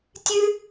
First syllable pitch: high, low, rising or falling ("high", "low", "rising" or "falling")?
high